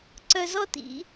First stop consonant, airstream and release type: click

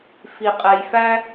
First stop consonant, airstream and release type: ejective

